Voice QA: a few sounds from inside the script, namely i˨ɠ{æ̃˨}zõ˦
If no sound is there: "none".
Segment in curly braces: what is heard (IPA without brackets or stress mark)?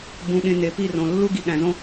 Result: æ̃˨